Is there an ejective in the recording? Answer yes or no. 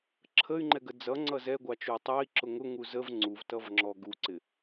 no